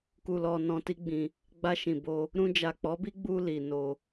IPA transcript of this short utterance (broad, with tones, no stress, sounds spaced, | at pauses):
k u˨ l ɔ˨ n ɔ̃˧ t i˦ ɡ͡b ĩ˧ | ɡ͡b a˧ ʃ ĩ˨ b o˧ | ɾ ũ˧ d͡ʒ a˨ k͡p ɔ˨˦ b i˦ ɡ͡b u˧ l i˨ n o˧